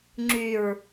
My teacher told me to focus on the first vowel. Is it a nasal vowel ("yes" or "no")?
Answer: no